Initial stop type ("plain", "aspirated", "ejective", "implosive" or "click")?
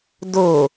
plain